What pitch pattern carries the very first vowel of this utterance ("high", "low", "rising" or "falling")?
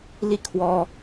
falling